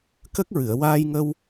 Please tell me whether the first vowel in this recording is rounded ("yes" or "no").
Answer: no